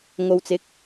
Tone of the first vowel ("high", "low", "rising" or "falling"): low